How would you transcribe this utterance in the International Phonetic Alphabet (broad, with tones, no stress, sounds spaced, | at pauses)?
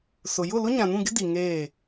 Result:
s ʊ˨ j ʊ˦˨ l ʊ˦ ɲ ã˨ n ũ˦˨ ɡ ɪ˦ d i˨ ŋ eː˦˨